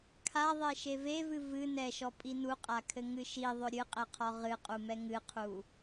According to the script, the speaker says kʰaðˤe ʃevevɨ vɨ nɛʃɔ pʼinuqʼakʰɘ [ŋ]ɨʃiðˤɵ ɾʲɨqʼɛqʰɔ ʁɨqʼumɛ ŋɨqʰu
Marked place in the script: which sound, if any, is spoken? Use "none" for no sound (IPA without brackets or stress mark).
ŋ